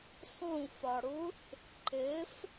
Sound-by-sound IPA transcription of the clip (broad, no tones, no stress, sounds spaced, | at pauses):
sˤ ũ f ɒ ɽ u θ | ǃ ɪ f